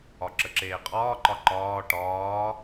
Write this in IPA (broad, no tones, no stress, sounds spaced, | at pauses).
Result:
ɒ ǁ ə ǁ eː qʼ ɒː ǃ ɒ ǃ ɒː ʈ ɒː